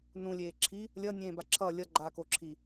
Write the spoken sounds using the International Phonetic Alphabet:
n ũ lʲ eː ǁʰ i | lʲ ʌ nʲ ẽː b a ǁʰ ʌ lʲ ʌ ɡ͡ǃ a k o ǁʰ i

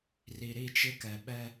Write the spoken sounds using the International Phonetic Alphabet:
r i˨ ɾ i˦˨ t͡ʃ ɪ˦ k ɛ˨ ɓ ɛ˦

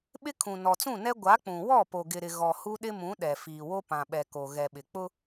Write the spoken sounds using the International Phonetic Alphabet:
ɓ ɪ˦ kʰ ũ˨ n ɔ˨ t͡s ũ˦˨ n ɛ˦ ɡʷ a˨˦ k͡p ũ˨ w ɔ˦˨ p o˨ ɡ ɪ˨ ɾ ɪ˨ ɣ ɔ˨ h u˦ ɗ ɪ˦ m ũ˨˦ ɗ ɛ˨ f iː˨ w o˦ p ã˨ ɓ ɛ˨ k o˨ ɣ ɛ˨ ɓ ɪ˨ k͡p ʊ˦

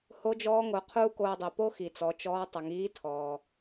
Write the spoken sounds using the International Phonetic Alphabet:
h o˧˥ d͡ʒ ɔː˧˥ ŋ o˩˧ qʰ uː˥ k oː˧ dˤ i˩ p o˥ x i˩ t͡s ɔ˩˧ t͡ʃ ɔː˧˥ tˤ ə˩˧ ŋ iː˧˥ tʰ ɔː˩

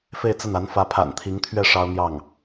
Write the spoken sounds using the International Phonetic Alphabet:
f e˥˧ ɪ̯ t͡s ə˥˩ n a˧˥ n f ä˧˥ pʰ a̰˨˩ n t̪ʰ i˧˥ ŋ t̪ʰ ɥ ɛ˥˩ ʂ ɑ˥ ʊ̯ n̪ j ɑ˥˩ ŋ

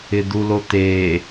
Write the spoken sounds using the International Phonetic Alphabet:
ɪ d̪ u l o t̪ e

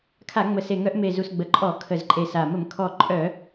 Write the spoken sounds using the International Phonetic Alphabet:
kʰ a˧˩˧ ŋ͡m ə˨˩ s e˨˩ ŋ œ˧˩˧ ʔ m e˨˩ z u˨˩ s ɡ͡b ə˨˩ ǃʼ ɔ˧˩˧ kʰ ə˨˩ z ǃʼ e˨˩ s a˨˩ m ə˧˩˧ m kʰ ɔ˨˩ ǃʼ œ˧˩˧

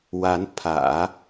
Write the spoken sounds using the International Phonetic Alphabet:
w a˧˥ n pʰ ä̰˨˩˦

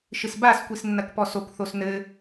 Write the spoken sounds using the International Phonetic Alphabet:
ʃ ɨ s b a s kʷ i s nː ɐ k p ɔ s o k θ o s n ɘ

